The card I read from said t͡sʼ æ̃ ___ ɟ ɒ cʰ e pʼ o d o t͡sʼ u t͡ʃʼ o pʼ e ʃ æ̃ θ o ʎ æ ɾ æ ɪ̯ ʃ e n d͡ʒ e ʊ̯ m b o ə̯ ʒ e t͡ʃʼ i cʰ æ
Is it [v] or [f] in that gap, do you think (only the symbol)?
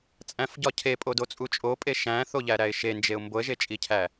f